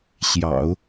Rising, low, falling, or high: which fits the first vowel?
low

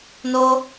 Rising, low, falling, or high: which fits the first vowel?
high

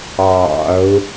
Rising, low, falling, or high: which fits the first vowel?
low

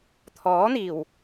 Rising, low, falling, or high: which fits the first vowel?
rising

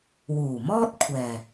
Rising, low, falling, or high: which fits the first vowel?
low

